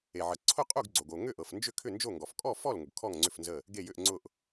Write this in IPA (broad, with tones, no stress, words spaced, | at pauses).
e˩ʕə˩ ǀʰʊ˥˩qʼu˥˩ɡ ɡ͡ǀo˩ɡ o˩ ŋʏ˥˩ʔɤ˩fnd͡ʒʏ˥˩ kʰʏ˥˩nd͡ʒo˥˩ŋɡɔ˩f kʼɔ˥˩fɔ˥˩l ŋʊ˩ɡkʰɔ˥˩ŋ ŋ͡ǀʏ˥˩fnzə˥˩ | ɡe˥˩jʏ˥˩ʔŋ͡ǀʊ˥˩ʔ